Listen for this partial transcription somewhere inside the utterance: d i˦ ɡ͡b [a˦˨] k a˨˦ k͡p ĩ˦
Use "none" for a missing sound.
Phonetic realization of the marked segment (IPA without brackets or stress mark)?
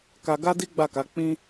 a˦˨